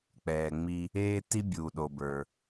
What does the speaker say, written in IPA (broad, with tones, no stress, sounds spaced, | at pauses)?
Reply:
k͡p ɛː˩ ŋ͡m i˧ | eː˥ t i˥ bʲ uː˩ ɗ o˩ b ə˞˩